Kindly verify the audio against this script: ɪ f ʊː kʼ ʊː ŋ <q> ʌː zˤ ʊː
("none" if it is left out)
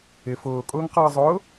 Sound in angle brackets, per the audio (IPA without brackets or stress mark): q